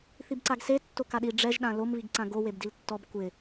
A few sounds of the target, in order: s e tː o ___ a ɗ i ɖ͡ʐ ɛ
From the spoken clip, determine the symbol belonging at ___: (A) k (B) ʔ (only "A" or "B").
A